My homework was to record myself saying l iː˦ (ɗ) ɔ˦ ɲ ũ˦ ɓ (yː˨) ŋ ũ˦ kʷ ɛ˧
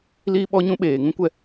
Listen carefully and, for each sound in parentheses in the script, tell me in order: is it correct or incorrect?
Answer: incorrect: ɓ, incorrect: eː˨

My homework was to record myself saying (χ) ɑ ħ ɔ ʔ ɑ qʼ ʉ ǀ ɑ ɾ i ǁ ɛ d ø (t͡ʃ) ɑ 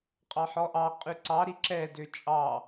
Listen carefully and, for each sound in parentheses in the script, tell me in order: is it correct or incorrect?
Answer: incorrect: qʼ, incorrect: t͡ʃʼ

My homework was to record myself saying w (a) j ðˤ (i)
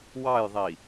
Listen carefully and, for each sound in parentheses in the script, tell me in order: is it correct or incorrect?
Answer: incorrect: ɑ, correct

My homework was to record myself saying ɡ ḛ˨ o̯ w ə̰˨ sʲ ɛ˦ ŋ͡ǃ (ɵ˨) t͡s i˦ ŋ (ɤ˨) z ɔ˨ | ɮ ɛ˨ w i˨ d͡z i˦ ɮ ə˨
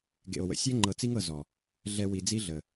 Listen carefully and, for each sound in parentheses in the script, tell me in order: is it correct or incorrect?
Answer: incorrect: ɤ˨, correct

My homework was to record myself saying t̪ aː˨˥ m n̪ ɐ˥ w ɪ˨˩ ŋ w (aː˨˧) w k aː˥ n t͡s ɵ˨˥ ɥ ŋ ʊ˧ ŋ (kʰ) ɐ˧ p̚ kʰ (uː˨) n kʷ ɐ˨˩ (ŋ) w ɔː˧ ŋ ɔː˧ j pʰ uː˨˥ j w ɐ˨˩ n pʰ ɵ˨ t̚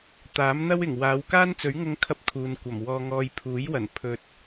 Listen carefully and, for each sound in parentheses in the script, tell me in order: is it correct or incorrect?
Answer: correct, correct, correct, incorrect: m

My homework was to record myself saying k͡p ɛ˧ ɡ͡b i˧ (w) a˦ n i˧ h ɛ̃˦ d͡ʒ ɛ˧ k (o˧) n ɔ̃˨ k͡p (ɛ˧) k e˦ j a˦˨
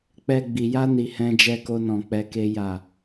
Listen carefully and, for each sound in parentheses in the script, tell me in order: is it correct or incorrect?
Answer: incorrect: j, correct, correct

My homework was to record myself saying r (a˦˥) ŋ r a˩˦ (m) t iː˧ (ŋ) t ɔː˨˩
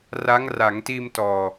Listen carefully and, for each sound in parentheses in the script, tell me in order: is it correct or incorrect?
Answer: correct, incorrect: ŋ, incorrect: m

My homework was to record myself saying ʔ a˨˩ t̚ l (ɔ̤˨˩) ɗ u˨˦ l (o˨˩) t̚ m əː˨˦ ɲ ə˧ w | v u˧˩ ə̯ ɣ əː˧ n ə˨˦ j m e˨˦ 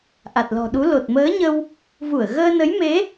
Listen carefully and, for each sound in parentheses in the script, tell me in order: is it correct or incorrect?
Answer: correct, correct

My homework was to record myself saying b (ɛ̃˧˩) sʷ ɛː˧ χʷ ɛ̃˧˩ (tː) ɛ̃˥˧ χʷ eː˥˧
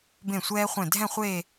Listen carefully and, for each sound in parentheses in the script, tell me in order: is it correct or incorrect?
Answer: incorrect: ẽ˧˩, incorrect: dʱ

